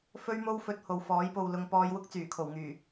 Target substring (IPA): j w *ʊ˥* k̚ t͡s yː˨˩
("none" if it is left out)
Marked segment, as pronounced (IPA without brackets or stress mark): ʊ˥